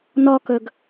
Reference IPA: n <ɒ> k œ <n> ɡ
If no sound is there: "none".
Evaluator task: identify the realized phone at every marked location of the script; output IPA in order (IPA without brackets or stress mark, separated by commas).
ɒ, none